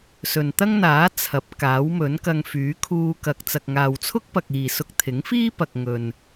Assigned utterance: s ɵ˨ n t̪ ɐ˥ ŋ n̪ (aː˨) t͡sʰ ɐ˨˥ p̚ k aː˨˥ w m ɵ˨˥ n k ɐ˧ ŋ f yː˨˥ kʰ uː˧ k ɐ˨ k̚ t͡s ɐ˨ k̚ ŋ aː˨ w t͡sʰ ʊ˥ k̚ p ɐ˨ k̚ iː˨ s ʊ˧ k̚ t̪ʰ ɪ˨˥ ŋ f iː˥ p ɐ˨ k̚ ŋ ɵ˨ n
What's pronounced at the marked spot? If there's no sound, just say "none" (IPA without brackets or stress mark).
aː˨˥